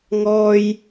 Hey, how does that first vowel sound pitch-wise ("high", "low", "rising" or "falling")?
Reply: high